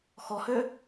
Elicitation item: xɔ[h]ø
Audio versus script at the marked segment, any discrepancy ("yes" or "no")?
no